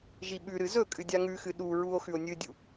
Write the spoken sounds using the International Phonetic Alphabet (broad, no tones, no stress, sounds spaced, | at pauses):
ʒ i ɓ ʉ ɾ ɨ z ɵ kʼ ɨ dʲ a ŋ ʉ x ɨ ɗ u ɹ u o̯ x ʉ o̯ nʲ ɨ dʲ u